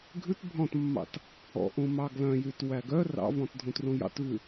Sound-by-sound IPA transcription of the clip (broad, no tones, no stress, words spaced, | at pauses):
ɡʱʉt bʱɔ̃tmːɑ̰t | ɔ̰ʔũmɑ ɡlœ̃jytwæ ɡœ rɑ̰vɔ̃tdʱũtrũ jɑ̰tvʉ